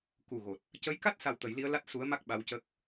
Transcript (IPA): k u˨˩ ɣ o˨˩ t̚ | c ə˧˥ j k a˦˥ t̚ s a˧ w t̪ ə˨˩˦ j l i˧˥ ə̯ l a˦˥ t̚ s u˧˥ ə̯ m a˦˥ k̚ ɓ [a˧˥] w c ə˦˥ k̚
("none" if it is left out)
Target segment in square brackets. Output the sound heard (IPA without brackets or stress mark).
a˧˥